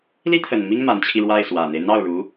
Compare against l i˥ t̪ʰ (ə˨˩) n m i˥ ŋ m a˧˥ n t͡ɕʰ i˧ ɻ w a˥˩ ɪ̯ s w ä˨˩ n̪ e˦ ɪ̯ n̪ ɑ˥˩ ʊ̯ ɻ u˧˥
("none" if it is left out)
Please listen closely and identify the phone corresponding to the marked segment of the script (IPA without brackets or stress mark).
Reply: ə˨˩